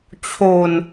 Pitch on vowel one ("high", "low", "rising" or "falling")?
low